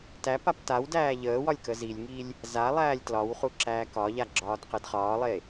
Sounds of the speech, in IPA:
tæpap tawdæː ʎəːwɒlʲ kəzilʲŋilʲ | za lˠæːlʲtlɒwχu ǁæːkɒʎa ɡ͡ǁɒːdqedχɒːlˠe

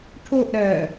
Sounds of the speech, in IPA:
ʈʰoʔ ɾɜ

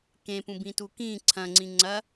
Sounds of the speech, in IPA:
kẽpũ bĩtukĩ ǀʰɐ̃ŋ͡ǀĩ ŋ͡ǀɐ

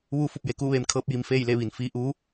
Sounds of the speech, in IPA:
ʋuː˧fu˧˩p̚ je˩˧kuː˥˨ʋeː˧m kʰɤː˧p̚ji˩m feː˥˨jle˥˨ʋi˩n fiː˧ʔuː˧˥

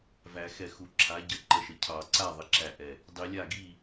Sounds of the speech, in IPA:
væ˨˩˦xɛ˧˩xu˨˩˦ ǁʰa˩˥ɟə˩˥ ǃə˧˩ʃə˩˥ cʰɑ˨˩˦ǀa˥˩ðˤə˩˥ǁæ˧˩ ʔɛ˧˩ | dˤi˨˩˦lʲa˥˩ ɡi˥˩

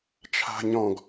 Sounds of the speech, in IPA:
t͡ʃʰa̤ɲɔ̃ɡ

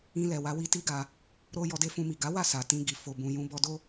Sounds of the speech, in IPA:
ĩ˧lɛ˨wa˨˦ wi˧ti˦ɡa˧ | ɾo˧ jɔ˧de˦fũ˧mi˨ ɡa˨˦wa˦˨sa˨ tĩ˧ɡi˨ fo˧bũ˧ jũ˧bɔ˧do˦

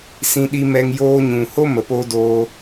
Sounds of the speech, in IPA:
sĩ˧ɗi˧mɛ˧ŋ joː˧ɲũ˨ho˦ mə˨po˧doː˧

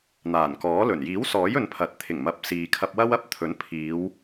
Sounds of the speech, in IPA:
n̪aː˨˩nkɔː˨˥lɵ˨˩n jiː˨˥wsɔː˨˥j ɵ˨˧npʰɐ˨t̚ t̪ʰɪ˨˩ŋmɐ˨˥p̚ siː˨kʰɐ˧p̚wɐ˥w ɐ˥p̚ t̪ʰɵ˨˥n pʰiː˨˧w

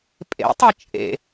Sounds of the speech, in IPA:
pʼḛtˤɤ t͡ʃʼḛ

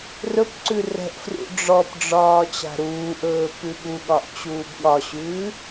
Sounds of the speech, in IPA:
rɵpǀʉ rɛ̤ʔfrṵ ɖ͡ʐɔpɖ͡ʐɒː t͡ɕa̤ɾuːʔɵː pʉɠuɠɒʔ t͡ɕuːbɠɒɕʉː

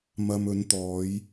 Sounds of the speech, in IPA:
mɐ˨mɵ˨˧nt̪ɔː˨˧j

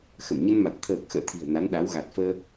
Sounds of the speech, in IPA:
xə˧˩mɲə˧nma˨˩t̚ t̪ʰəː˨˩k̚ xə̰ː˧˨t̪ʰi̤˨˩ə̯ na˨˦nɗa˨˦w ɣa˨˩t̚fəː˧

